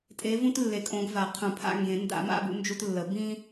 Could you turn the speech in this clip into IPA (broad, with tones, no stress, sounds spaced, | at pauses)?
tʼ e˨˦ v ũ˦ t lː e˨˩˦ kʼ õ˨˦ ɡ v a˨˩˦ qʰ ũ˨˩˦ pʰ a̰˦ ŋ ɡ ẽ˨˩˦ n d a̰˨˩˦ m a̰˦ b ṵ˨˦ n d͡ʒ u˦ t lː ə˨˩˦ b ĩ˦